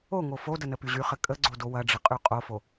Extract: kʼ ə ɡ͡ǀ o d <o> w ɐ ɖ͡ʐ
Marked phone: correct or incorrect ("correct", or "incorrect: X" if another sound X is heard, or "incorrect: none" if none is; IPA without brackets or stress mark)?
correct